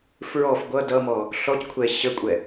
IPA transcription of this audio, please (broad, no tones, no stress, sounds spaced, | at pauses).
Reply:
f ɹ ɔ f ɡʷ ʌ d ʌ m ɔ | ɬ ɔ c kʷʰ ɛ ɕ ə kʷʼ ɛ